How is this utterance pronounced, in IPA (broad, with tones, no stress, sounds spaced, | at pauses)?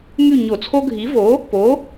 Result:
ŋ y˦˨ ɲ o˧˩˧ t͡sʰ o˦ ɡʱ i˨˥ v o˨˥ | p o˨˥